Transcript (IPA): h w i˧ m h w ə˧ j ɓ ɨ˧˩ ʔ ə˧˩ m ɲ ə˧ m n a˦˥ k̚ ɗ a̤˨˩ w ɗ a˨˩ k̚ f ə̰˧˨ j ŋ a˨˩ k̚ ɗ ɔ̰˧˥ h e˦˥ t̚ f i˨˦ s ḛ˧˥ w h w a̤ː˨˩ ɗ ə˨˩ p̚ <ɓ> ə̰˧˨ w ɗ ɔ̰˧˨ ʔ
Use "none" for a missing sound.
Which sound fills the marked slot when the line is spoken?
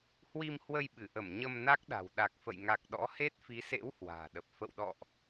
f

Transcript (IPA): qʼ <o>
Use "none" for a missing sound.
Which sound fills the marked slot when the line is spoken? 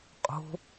o̤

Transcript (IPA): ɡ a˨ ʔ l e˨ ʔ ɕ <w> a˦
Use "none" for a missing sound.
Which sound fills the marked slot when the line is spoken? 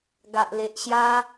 j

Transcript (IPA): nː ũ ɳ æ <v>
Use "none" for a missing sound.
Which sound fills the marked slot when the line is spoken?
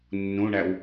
w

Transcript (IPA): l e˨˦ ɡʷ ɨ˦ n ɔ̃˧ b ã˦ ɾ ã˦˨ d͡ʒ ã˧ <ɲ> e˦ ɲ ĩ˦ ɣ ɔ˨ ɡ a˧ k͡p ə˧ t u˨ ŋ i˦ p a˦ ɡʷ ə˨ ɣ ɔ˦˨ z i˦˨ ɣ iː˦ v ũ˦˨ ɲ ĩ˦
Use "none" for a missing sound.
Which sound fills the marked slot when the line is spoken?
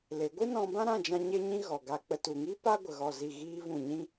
ɲ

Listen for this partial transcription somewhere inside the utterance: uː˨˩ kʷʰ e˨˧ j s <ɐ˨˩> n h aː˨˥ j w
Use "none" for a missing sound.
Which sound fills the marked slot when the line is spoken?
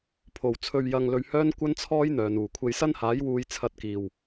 ɐ˥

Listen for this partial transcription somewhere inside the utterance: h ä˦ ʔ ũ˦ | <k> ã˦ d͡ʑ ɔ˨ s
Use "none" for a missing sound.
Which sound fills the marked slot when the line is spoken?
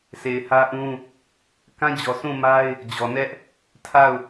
k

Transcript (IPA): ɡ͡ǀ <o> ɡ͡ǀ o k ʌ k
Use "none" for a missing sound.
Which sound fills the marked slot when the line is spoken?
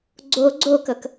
o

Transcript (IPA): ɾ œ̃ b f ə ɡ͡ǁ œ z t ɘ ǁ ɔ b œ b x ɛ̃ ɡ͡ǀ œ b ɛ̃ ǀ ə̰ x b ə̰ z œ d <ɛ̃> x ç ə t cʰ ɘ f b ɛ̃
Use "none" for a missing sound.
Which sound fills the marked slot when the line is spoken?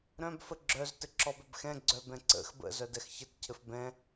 ɛ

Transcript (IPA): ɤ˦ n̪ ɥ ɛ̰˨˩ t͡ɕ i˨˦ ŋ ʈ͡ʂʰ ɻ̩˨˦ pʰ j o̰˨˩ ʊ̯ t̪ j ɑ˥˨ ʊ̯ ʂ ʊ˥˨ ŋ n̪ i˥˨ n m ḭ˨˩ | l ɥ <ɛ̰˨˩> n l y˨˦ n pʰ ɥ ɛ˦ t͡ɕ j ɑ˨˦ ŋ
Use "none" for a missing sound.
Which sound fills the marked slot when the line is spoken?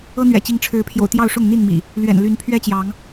ɛ̰˨˩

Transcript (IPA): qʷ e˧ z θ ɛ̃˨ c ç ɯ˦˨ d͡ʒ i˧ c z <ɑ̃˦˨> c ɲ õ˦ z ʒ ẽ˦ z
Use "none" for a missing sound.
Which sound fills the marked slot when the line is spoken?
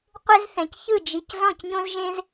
ɔ̃˦˨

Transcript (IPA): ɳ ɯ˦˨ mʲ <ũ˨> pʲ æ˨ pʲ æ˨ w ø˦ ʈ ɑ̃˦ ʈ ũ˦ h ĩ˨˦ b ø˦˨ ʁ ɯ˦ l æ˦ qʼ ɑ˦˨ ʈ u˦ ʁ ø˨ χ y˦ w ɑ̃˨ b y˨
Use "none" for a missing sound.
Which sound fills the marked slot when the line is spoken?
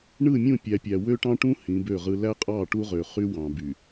ũ˦˨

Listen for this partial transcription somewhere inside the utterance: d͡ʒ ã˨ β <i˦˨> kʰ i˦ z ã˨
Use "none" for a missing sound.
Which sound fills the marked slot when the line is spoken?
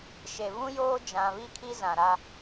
i˦˨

